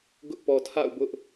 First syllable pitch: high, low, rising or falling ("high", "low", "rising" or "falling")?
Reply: high